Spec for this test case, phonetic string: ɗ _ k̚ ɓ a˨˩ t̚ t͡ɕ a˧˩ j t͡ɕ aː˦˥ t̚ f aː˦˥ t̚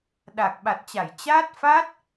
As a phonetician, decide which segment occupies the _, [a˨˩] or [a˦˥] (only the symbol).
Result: a˨˩